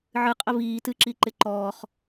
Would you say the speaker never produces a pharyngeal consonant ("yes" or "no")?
no